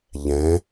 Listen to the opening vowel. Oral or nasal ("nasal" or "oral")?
nasal